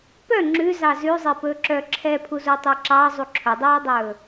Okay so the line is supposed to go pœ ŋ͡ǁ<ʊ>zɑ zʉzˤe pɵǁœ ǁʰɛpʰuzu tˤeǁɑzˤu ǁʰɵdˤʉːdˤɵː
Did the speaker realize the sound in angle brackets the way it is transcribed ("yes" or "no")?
no